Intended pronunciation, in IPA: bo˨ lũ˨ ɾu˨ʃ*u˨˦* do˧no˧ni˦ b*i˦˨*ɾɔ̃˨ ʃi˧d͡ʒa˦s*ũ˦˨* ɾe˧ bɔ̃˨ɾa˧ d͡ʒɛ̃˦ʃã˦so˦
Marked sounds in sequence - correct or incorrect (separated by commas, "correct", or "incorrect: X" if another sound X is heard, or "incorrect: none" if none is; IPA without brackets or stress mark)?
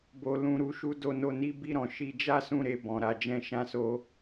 correct, correct, correct